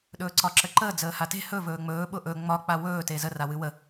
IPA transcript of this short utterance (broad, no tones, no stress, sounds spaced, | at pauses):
ɗ ɵː ǀ ɒ ǁ ə ǃ əː d͡z əː h a t e̤ h ɵ v ɵː ŋ͡m ɵː ɓ ʊ ʔ ɵ ŋ͡m ɒ k͡p a w ɵː t e z ə r a w ɨ w ə